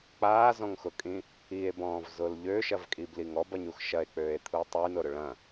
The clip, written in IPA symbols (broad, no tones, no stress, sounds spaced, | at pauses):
k͡p aː z ɔ̃ ŋ x ʊ kʼ ĩ | i e̯ b ɔ̃ː v z ʊ l ʎ ø ʃ ɐ v kʼ i b l i ŋ ɔ b ɐ ɲ u x ʃ ɐ e̯ k͡p øː e̯ t̪ʰ u tˤ y n ʊ ɾ ʊ ɭ ɐ̃